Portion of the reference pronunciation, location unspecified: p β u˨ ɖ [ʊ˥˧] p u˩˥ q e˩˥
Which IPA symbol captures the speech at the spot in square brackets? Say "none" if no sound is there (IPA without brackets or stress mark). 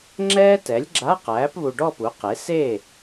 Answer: ɔ˥˧